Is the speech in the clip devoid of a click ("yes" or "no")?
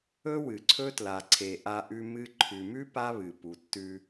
no